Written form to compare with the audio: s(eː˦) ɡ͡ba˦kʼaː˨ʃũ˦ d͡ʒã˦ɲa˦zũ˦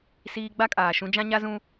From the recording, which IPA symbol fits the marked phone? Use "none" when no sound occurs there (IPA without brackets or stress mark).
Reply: iː˦